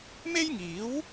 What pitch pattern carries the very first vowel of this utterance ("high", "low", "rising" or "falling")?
high